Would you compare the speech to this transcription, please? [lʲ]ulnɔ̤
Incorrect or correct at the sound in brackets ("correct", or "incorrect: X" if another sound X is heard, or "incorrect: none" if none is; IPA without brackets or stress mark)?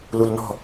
incorrect: l